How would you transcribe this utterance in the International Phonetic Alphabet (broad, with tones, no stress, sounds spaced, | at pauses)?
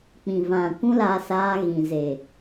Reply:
k͡p ĩ˨ v ã˨ kʷ ũ˦ l aː˧ s aː˧ ɣ ĩ˨ z e˨